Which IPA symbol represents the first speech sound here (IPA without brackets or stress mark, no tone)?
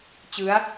t͡ɕ